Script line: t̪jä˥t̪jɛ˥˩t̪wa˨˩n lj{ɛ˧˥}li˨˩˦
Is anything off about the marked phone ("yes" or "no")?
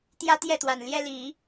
yes